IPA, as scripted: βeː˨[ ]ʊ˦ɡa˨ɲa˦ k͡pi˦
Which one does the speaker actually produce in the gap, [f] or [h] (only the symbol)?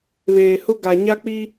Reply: h